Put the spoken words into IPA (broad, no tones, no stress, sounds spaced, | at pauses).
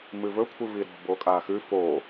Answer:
m ɨ v ɵ kʷʰ ɨ v i ɾ o̤ b o kʼ a x ʉ f o